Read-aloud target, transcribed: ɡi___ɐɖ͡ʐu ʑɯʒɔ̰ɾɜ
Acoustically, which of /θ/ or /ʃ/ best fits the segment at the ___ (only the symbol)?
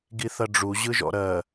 θ